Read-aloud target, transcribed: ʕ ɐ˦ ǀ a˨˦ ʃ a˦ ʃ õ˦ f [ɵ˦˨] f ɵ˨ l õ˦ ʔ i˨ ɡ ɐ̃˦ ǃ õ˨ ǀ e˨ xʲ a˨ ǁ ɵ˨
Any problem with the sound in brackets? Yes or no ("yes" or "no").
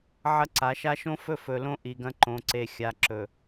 no